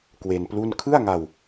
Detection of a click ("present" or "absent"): absent